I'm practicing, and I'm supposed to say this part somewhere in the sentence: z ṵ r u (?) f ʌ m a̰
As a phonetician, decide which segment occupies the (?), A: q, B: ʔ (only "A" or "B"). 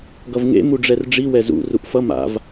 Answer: B